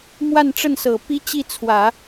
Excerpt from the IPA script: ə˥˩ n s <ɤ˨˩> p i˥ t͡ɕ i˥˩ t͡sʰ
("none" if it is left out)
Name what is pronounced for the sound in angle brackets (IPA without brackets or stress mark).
ɤ˨˩